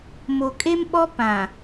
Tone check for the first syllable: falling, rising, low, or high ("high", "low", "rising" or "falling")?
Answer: low